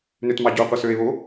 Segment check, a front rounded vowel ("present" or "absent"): present